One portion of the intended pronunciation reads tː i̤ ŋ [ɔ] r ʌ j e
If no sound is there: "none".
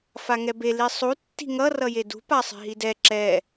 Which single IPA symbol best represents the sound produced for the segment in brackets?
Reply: ʌ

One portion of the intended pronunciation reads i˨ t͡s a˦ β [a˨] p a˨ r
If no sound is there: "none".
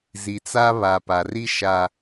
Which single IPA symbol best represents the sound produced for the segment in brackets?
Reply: a˨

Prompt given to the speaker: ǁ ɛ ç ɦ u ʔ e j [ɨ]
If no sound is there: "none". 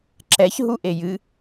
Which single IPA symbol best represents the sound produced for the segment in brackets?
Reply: ɨ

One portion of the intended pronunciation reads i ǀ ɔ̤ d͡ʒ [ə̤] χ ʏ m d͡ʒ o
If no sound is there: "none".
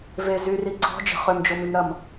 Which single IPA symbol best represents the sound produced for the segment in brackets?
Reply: ə̤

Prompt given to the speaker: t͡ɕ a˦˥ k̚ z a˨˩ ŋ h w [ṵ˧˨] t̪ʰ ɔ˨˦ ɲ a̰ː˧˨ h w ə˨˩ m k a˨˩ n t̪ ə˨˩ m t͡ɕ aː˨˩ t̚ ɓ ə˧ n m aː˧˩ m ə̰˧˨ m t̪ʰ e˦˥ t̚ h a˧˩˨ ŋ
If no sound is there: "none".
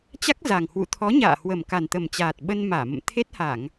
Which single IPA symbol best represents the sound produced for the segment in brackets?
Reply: ṵ˧˨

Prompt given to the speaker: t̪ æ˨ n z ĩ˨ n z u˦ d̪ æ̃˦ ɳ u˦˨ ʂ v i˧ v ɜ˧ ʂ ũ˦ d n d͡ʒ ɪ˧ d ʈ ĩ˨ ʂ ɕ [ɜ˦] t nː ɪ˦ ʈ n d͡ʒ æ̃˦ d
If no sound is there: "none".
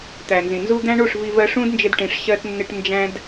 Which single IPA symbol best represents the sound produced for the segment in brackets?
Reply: ɜ˦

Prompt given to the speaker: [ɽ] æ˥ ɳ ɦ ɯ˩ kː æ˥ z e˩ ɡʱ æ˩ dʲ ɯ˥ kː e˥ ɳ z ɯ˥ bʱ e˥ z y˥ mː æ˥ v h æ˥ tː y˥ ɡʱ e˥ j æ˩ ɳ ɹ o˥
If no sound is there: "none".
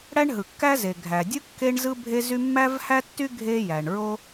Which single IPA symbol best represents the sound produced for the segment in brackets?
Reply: ɽ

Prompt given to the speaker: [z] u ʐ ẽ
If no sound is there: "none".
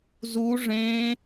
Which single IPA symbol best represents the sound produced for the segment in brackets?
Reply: z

